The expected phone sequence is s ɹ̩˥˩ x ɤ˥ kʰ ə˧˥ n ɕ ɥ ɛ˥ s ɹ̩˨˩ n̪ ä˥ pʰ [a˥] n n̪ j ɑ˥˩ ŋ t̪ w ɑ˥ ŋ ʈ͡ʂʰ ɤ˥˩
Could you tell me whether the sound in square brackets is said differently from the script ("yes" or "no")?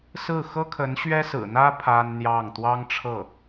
no